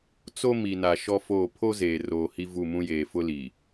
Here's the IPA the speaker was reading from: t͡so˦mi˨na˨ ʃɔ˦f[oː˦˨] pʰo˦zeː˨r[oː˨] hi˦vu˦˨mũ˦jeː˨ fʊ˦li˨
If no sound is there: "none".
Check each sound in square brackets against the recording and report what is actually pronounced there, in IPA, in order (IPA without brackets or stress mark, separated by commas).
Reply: oː˦˨, oː˨